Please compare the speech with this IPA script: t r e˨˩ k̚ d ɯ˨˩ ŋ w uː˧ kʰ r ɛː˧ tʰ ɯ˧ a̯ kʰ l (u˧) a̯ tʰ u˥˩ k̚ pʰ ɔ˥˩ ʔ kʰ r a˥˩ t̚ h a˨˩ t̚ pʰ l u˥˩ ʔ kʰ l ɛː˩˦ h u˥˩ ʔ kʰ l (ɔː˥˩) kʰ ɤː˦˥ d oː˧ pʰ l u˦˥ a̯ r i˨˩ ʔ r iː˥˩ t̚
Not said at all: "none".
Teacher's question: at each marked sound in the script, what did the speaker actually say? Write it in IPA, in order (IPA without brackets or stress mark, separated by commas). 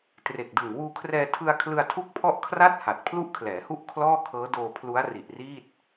ɯ˧, ɔː˥˩